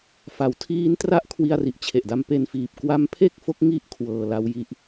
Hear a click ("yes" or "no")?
no